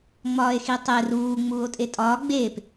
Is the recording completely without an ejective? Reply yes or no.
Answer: no